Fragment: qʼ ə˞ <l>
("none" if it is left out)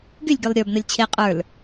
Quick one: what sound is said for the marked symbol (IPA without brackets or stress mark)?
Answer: l